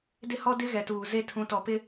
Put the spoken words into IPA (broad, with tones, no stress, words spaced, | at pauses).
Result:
dɪ˦hɔ˦dɪ˦ ɣɛ˨tuː˨ze˦ tʰũ˦tɔ˦ pɪ˦